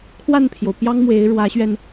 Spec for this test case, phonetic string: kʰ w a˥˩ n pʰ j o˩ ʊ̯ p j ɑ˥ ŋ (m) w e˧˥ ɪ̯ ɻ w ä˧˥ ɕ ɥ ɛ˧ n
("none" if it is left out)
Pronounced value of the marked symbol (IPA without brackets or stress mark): m